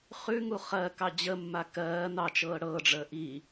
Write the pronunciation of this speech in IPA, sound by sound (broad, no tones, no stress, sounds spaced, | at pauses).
χ ʉ ŋ u χ ɜ k ɑ d͡ʑ ə mː a k ɜː n ɑ t͡ʃ ɤː ɽ ɤː ɖ͡ʐ əː ʔ i